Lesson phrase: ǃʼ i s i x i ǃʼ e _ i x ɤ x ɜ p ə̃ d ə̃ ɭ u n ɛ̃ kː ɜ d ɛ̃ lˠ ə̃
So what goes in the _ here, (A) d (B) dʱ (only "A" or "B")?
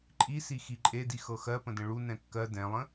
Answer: A